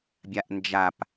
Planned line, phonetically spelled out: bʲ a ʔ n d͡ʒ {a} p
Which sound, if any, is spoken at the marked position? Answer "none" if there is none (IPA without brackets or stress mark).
a